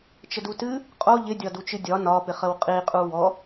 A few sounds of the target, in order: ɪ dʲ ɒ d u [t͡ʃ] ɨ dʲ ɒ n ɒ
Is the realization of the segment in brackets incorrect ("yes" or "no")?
no